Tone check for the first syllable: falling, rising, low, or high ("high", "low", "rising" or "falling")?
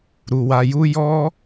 low